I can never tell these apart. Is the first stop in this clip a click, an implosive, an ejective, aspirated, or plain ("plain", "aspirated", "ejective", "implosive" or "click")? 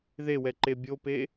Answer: click